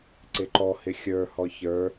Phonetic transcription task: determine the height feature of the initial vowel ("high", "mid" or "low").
high